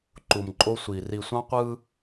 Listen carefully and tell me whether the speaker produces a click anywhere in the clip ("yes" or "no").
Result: yes